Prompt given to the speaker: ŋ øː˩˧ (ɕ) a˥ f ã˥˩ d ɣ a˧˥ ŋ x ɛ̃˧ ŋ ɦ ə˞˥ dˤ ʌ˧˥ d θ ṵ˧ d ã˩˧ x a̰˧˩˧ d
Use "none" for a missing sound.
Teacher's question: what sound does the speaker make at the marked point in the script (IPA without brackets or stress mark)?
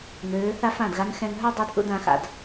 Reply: θ